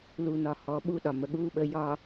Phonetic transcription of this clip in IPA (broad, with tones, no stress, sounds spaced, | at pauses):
l u˨ n ɒ˨ h ɔ˨˦ ɓ u˦ ɗ ɒ˨ m ə˨ ɠ uː˦ ɓ ə˨˦ j ɒ˨